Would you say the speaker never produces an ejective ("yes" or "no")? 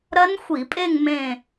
no